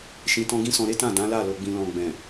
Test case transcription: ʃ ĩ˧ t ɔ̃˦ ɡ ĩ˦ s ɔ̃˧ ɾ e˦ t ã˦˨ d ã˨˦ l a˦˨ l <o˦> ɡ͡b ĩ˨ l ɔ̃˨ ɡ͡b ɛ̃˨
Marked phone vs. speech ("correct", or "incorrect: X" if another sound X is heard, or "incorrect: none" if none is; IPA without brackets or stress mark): incorrect: o˨